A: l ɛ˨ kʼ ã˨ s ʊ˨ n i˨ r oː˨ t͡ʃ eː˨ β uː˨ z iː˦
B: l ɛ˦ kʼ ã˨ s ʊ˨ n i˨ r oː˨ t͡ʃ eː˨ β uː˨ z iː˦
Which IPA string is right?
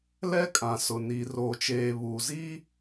B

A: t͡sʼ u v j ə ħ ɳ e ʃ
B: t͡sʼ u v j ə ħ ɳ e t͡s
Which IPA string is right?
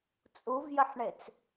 B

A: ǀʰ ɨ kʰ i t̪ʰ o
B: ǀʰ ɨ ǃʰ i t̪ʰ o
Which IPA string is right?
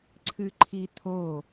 B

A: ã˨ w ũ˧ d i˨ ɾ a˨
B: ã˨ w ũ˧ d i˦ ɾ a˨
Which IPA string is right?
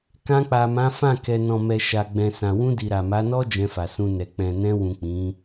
A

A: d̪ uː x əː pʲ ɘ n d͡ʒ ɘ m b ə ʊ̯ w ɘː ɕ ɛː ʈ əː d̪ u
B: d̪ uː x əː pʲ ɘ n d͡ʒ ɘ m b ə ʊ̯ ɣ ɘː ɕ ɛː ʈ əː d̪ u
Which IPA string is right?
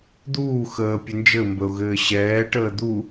B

